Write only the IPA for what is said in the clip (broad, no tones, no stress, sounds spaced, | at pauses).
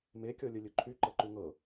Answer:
m e kʲ ɔ lʲ ə lʲ ɵ ǃʰ y ǃ ɤ ǃ u ŋ ɤ